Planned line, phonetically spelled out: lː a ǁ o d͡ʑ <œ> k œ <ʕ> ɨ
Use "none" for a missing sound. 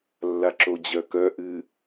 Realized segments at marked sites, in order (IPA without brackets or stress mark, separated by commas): œ, ʔ